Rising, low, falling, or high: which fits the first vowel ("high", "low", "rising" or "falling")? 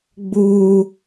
high